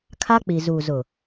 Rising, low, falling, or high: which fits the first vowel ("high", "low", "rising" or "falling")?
high